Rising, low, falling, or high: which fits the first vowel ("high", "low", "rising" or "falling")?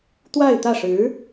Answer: falling